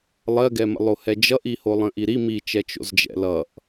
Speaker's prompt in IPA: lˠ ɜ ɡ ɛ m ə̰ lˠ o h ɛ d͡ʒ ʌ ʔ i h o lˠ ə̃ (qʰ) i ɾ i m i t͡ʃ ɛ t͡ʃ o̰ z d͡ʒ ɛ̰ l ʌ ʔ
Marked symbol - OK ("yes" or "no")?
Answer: no